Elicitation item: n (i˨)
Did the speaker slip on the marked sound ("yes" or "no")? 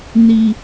no